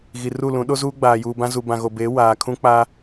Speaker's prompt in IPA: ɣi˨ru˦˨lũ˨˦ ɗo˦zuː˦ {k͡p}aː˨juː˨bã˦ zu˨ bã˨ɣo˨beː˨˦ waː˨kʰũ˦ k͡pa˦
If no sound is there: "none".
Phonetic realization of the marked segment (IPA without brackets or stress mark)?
ɡ͡b